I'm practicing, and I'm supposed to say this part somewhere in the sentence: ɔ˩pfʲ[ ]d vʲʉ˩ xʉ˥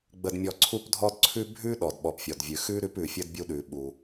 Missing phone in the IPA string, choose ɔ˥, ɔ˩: ɔ˩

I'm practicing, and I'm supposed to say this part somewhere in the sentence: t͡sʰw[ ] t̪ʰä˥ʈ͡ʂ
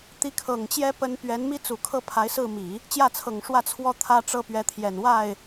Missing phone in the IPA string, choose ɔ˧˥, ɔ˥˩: ɔ˥˩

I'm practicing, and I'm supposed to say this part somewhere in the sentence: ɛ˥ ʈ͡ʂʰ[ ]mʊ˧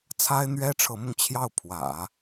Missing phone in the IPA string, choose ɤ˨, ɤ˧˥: ɤ˧˥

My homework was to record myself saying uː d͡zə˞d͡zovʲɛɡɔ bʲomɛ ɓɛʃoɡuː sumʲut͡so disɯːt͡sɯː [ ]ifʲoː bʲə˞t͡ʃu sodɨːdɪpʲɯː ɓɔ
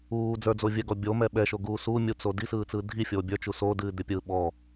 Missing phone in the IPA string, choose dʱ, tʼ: dʱ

